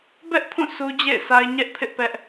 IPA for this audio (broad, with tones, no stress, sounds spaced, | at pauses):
b ɛ˦ ʔ pʰ ũ˦˨ s u˦ d͡ʑ ḛ˦˨ ɪ̯ s a˦ ɪ̯ ɲ ɛ˦ ʔ pʰ ɪ˦ ʔ p ɛ˦ ʔ